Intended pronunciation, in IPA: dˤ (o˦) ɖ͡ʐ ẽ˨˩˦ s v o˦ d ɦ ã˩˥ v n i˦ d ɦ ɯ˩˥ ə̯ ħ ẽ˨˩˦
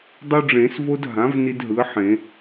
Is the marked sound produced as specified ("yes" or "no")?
yes